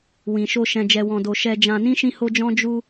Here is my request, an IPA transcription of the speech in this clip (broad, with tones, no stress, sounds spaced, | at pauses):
w ĩ˨ ʃ o˧ ʃ ɛ̃˧ d͡ʒ ɛ˧ w ɔ̃˧ d o˧ ʃ ɛ˧ d͡ʒ ã˧ n ĩ˦ ʃ ĩ˦ h o˦ d͡ʒ ɔ̃˦ d͡ʒ u˦